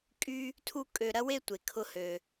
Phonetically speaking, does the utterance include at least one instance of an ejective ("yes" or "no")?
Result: yes